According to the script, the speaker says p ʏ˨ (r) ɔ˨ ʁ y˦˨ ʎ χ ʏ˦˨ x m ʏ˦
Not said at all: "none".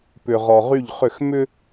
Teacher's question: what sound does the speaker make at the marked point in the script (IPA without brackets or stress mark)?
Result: ʁ